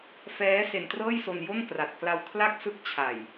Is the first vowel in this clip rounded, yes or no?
no